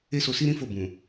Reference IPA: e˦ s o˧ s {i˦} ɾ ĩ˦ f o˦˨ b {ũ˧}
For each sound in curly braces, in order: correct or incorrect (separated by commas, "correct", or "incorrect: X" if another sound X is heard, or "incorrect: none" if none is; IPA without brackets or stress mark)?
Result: correct, incorrect: ũ˨